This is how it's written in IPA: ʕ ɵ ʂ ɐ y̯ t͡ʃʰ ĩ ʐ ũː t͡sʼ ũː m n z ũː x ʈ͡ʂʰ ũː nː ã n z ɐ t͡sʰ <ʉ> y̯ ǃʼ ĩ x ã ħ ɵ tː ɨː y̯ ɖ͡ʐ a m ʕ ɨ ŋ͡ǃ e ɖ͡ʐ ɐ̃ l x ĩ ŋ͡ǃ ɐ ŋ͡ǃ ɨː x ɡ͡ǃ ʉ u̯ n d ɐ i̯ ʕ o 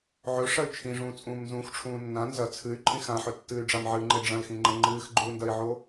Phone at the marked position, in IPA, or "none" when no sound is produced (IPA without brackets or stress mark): ɨ